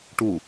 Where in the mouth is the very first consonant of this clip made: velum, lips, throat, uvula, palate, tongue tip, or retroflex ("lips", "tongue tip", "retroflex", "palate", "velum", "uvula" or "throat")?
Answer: retroflex